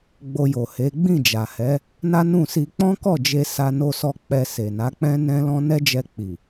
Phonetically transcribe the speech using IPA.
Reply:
ɡ͡b o˧ j o˨ h e˨˦ ɡ͡b ĩ˦˨ d͡ʒ a˨ h ɛ˨˦ | n a˦ n ũ˦˨ s i˧ k͡p ɔ̃˦ k ɔ˦˨ d͡ʒ e˧ s a˧ n o˧ s ɔ˧ k͡p ɛ˧ s e˨ n a˨˦ k͡p ɛ̃˦ n ɛ̃˦ l ɔ̃˦ n ɛ˦ d͡ʒ ɛ˧ k͡p i˨

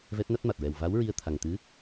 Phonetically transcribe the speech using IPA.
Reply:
v ɛ˦˥ t̚ n a˦˥ t̚ m a˨˩ t̚ ɹ ɛ˨˩ w v a˧˥ w ɹ i˧ ə̯ t̪ʰ a˨˩ ŋ t̪ ɨ˧˥

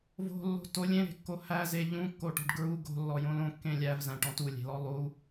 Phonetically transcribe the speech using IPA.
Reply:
v o̤ lː o̤ t o lʲ ẽ ɾ e̤ kː o h æ z e ʎ ũ kː o ʈ ɔ̤ ɖ ɡ ɹ u ɡ o̤ lː ɔ j õ l õ kː ẽ lʲ æ v z æ̃ ʈ ɔ̃ t u lʲ e̤ l ɔ lˠ u

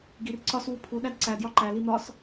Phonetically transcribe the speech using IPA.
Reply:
ɡ i r ǀ ɒ s w u pʰ u ɗ æ d ǀ æ d j ɒ ǃ æ l i n̪ ɒ s

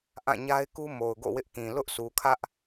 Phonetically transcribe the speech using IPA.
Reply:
ʔ ã˦˨ ɲ a˦ ɪ̯ k u˦ m o˨ ʊ̯ ɡ o̰˦˨ w ɪ˦ ʔ k ĩ˨ l ʊ˦ ʔ sʰ u˨ kʰ ä˦ ʔ

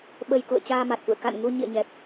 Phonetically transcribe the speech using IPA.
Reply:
ɓ ə˧ j k ṵ˧˨ ə̯ t͡ɕ aː˧ m a˨˩ t̚ f ṵ˧˨ ə̯ k a̰˧˨ n ŋ u˧ ɲ ḭ˧˨ ə̯ ɲ ɛ˨˩ p̚

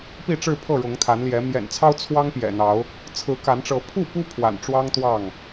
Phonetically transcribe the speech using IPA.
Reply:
p i˥˨ ʈ͡ʂ ɻ̩˥˨ pʰ ɤ˥˨ ɻ ʊ˨˦ ŋ t̪ʰ a˨˦ n l j ɛ˨˦ m j ɛ̰˨˩ n t͡sʰ ɑ˦ ʊ̯ t͡sʰ w ɑ˦ ŋ p j ɛ̰˨˩ n̪ ɑ˨˦ ʊ̯ | t͡sʰ ɹ̩˨˦ k a˨˦ n ʈ͡ʂ ɤ˨˦ pʰ u˥˨ p u˦ pʰ w a̰˨˩ n ʈ͡ʂ w ɑ˦ ŋ t̪ w ɑ˥˨ ŋ

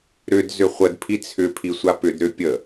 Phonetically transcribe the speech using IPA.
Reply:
ɾ ʏ d z ʏ χʷ ə d pʰ i t͡sʰ ʏ pʰ i sʷ a p ʏ d ɾ ʏ pʲ ə

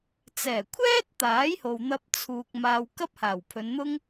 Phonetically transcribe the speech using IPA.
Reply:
t͡s ɛː˨˩ kʷʰ ɛː˥ t̚ t̪ aː˨˥ j h o˨ w n̪ ɐ˧ p̚ t͡sʰ uː˨ k̚ m aː˨ w k ɐ˥ p̚ h aː˨˩ w pʰ ɵ˨˧ n n̪ ʊ˥ ŋ

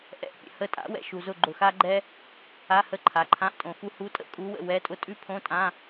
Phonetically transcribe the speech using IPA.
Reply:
ʔ ɛ̰˧˥˧ ʔ pʲ ə̰˨ h ə˦˨ tʼ a̰˩˥ w ɛ̰˨ ʃ u˨ z ʊ˦˨ ɡ͡ǃ ʊ˨ x a˥ ɡ͡ǃ ɛ˥ | a˧˥˧ h ə˦˨ ǃʰ a˩˥ ǃʰ ã˧˥˧ ʔ tʼ õ˨ x u˥ h u˧˥˧ tʼ ə̰˥ kʼ u˧˥ w ə̰˦˨ w ɛ˧˥˧ tʼ ʊ˥ tʼ ʉ˥ pʰ õ˧˥˧ tʼ ã˧˥˧

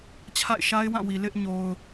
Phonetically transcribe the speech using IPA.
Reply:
t͡ɕʰ a̰˦˨ ɪ̯ ʃ a˦ ɪ̯ w ã˦˨ w i˨ l ɪ˦ ʔ ɲ o˦ ʊ̯

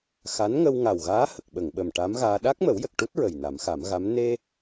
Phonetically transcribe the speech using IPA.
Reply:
x a˧˥ n ŋ ə˧ w ŋ a˨˩ w ɣ aː˧˥ h ə˨˩ k̚ ɓ ə˨˩˨ ŋ ɓ ə˨˩ m ʈ a˧˥ m ɣ aː˧ ɗ a˦˥ k̚ m ə˨˩˦ w j ə˨˩ k̚ ʈ u˦˥ t̚ ɹ ə˨˩ j n a˨˩˦ m x a˨˩˦ m ɣ a˧˥ m n e˧

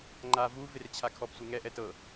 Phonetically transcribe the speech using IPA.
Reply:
ŋ͡ǃ a v u v e r t͡ɕʰ a kʰ ɔ p sʷ ɯ ŋ ɛ ʔ ɛ t ɤ

